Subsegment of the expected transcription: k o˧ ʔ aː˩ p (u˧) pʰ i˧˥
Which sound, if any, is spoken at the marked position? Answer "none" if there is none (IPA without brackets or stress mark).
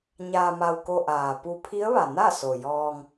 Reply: u˧